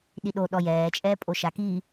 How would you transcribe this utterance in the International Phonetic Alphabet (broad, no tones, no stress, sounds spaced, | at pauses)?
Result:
ɗ i ɗ o ɗ ɔ j ɛː t͡ʃʼ ɛː pʼ o ʃ a k i